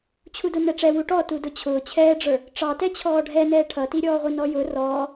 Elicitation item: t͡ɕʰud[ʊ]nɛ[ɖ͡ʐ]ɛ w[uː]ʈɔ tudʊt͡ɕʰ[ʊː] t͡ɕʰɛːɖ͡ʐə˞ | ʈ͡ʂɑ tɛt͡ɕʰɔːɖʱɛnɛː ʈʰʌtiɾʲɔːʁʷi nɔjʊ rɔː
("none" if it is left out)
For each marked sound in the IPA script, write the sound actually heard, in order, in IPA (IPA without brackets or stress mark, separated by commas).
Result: ʊ, ʈ͡ʂ, u, ʊː